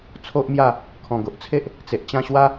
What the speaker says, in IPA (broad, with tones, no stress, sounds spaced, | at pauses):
t͡sʰ o˦ ʔ m j a˥˧ | kʰ ɔ̃˨˩ ɡ o˨ ʔ t͡sʰ e˦ ʔ | t͡s e˨ ʔ t͡ɕ ã˦ ɕ w a˦